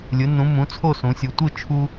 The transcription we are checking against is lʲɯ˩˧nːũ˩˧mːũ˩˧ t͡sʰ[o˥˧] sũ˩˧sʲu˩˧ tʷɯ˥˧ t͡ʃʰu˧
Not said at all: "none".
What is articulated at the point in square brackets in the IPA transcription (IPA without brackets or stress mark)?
o˥˧